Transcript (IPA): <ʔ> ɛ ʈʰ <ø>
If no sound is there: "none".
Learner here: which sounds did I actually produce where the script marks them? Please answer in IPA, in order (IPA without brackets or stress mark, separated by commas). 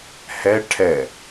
h, ɛ